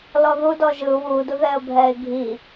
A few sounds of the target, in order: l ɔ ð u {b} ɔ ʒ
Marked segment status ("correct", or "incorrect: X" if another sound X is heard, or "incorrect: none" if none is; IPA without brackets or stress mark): incorrect: d